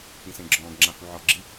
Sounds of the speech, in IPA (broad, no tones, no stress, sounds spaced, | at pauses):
p ĩ s ẽ ɡ͡ǁ ɔ̃ː ɡ ŋ͡ǁ ã h u ʕ ɔ ɡ͡ǁ i